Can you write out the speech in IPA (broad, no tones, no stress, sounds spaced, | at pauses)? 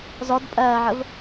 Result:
z ɔ d pʼ ɜː ʕ ə v